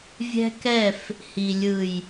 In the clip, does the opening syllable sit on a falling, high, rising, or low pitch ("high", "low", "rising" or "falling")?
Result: high